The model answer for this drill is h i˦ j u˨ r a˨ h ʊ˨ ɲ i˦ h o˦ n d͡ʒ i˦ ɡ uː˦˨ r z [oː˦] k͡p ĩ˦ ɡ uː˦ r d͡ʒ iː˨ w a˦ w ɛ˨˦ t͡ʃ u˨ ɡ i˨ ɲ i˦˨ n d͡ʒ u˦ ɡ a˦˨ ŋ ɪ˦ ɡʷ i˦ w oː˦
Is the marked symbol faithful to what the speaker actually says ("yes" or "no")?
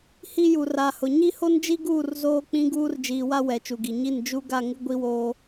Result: yes